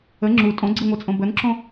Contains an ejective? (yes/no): yes